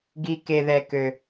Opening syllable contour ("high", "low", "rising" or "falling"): high